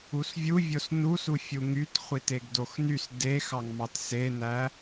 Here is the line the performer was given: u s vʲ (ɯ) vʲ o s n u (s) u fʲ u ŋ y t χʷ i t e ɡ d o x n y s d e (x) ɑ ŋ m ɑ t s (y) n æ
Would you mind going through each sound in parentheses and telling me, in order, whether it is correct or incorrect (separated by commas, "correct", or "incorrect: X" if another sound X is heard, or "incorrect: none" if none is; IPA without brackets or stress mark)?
incorrect: u, correct, correct, incorrect: e